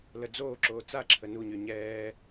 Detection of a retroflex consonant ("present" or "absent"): absent